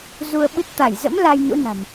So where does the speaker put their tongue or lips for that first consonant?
tongue tip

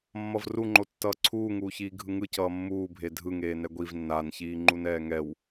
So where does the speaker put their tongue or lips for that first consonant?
lips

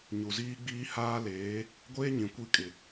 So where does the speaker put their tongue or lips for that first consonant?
palate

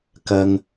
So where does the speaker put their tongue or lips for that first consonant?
velum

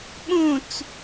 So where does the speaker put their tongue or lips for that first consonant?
lips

